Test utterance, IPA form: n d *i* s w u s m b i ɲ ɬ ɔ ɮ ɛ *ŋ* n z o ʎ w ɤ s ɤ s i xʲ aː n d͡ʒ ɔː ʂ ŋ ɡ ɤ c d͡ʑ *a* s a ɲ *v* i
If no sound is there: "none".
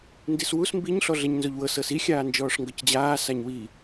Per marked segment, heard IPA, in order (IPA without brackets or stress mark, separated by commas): i, ɲ, aː, w